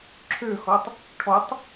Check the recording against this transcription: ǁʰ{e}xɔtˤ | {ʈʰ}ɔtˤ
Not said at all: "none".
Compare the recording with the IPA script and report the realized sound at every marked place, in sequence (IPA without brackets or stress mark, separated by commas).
ø, ʈʰ